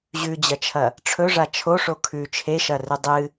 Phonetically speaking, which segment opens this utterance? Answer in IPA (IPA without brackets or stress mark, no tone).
ʑ